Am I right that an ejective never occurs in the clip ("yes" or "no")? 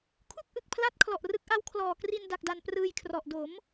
yes